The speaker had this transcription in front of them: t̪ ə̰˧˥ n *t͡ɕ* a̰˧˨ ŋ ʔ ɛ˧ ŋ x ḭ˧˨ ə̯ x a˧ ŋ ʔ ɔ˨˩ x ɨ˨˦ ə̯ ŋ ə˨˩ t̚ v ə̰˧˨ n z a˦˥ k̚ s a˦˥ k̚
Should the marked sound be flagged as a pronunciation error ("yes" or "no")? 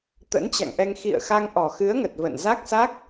no